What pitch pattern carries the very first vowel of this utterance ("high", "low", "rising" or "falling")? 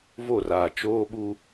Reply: falling